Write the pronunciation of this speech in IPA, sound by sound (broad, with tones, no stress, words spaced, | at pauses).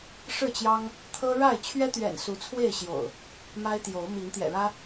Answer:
ʂɻ̩˥˨t͡ɕjɑ˦ŋ | t̪ʰɤ˦ɻa˥˨ɪ̯ t͡ɕʰɥɛ˦t̪ɥɛ̰˨˩n su˨˦t͡sʰwe˥˨ɪ̯ ɕjo̰˨˩ʊ̯ | ma˦ɪ̯t̪jo˨˦ʊ̯ mi˨˦ŋt̪jɛ̰˨˩ɻä˦